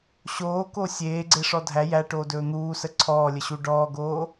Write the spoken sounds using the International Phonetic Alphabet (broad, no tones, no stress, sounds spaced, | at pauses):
ɕ oː k o sʲ eː ɡ͡ǀ e ʂ ɔ dʱ æ j æ ʈ oː d ɵː n̪ uː s ə ǀʰ ɔː lʲ ə ɕ u ɖ ɔː ɡ oː